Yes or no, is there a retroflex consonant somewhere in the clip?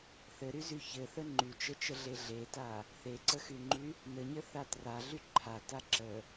no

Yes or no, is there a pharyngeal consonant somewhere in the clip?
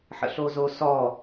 yes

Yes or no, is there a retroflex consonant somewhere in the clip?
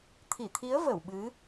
no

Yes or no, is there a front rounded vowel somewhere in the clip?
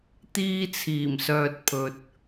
yes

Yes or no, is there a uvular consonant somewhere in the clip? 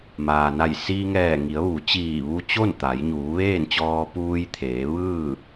no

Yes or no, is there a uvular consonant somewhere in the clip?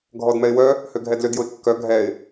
no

